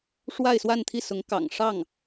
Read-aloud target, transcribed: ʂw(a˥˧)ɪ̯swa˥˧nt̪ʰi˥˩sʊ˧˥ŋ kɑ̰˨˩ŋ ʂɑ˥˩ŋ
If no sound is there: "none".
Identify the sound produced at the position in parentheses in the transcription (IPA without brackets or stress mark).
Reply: a˥˧